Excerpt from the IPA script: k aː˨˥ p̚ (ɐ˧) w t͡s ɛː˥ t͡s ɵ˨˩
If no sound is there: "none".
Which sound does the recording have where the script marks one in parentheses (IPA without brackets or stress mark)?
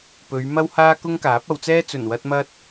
ɐ˨˧